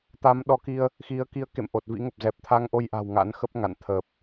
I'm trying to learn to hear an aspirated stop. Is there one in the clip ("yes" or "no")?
yes